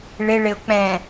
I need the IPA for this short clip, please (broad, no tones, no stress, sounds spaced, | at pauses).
ɭ ɪ ɭ ɪ ʊ̯ k͡p ɛ̃